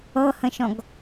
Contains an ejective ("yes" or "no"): no